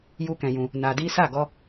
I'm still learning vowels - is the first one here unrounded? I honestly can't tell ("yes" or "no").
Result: no